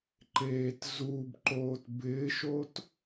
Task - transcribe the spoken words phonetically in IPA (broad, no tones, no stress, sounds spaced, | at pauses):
ǃ eː t z u b ǃ oː t b ɪː ʃ o t